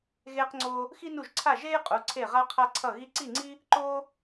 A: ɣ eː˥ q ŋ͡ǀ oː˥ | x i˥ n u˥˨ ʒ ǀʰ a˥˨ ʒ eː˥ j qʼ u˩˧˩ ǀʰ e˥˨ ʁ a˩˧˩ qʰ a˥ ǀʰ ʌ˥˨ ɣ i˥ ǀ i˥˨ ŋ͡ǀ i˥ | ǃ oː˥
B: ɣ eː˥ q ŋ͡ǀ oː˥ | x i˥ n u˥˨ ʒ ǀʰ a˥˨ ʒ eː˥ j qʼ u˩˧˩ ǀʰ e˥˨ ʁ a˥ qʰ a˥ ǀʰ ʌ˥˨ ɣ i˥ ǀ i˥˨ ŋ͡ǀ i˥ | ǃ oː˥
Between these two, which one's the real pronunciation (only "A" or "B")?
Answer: B